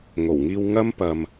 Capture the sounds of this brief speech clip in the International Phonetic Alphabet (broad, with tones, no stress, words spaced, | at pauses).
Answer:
ŋo˨˩wŋiː˧w ŋɐ˥m pɐ˨m